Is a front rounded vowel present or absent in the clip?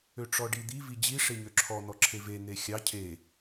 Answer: present